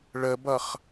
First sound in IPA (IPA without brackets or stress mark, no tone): ɭ